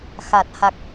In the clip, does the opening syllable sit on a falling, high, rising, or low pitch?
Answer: low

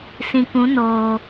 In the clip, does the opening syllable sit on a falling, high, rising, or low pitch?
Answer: low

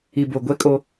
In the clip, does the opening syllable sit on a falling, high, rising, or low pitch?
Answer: low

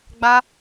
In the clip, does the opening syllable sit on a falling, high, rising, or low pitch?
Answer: high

